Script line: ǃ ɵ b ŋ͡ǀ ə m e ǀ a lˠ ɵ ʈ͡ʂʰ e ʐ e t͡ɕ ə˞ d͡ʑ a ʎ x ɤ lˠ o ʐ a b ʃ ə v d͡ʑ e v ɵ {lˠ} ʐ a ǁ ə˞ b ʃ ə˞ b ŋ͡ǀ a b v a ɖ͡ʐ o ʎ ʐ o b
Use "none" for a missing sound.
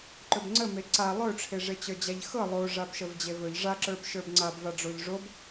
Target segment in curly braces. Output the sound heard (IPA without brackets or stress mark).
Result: ʎ